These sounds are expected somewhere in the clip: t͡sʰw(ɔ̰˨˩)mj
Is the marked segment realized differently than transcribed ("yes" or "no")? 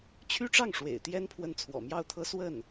no